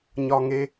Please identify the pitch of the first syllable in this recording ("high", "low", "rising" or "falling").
high